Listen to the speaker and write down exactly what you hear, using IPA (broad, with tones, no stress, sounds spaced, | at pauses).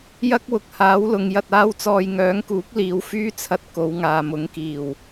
j ɐ˥ k̚ w ʊ˨ k̚ h aː˨˥ w l ʊ˨˧ ŋ j ɐ˧ t̚ aː˥ w t͡s ɔː˧ j ŋ œː˨˥ ŋ k uː˨˥ k̚ l iː˨˧ w f yː˥ t͡sʰ ɐ˧ t̚ k o˨˧ w ŋ aː˨ m ʊ˨˥ ŋ k iː˨˩ w